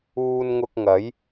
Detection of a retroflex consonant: absent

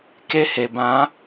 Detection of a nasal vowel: present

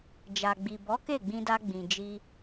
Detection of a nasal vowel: present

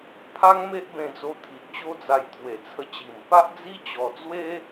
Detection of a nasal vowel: present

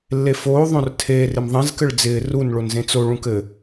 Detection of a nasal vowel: present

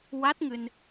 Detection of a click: absent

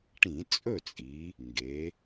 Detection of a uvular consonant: absent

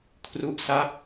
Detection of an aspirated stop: present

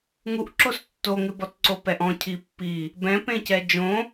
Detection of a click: present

